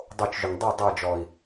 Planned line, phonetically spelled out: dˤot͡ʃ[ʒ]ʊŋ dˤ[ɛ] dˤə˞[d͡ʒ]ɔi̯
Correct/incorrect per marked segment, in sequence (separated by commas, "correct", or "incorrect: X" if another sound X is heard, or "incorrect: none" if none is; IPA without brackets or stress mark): correct, correct, correct